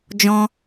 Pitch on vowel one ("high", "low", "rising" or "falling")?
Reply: high